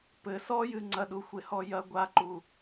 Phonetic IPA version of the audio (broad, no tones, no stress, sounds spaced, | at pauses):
p ɘ s ɔ j ɨ ŋ͡ǀ ɐ ɗ u xʷ e h ɔ j ɐ ɡʷ a ǃ u